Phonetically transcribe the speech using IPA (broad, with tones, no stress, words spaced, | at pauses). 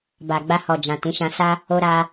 ba˨ɡ͡ba˧hɔ˨ d͡ʒã˨ tĩ˨˦ʃã˧sa˦ | o˧ɾa˧